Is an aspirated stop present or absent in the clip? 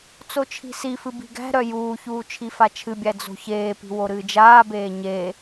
present